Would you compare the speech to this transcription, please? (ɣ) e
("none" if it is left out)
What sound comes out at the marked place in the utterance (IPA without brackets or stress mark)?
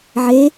ʕ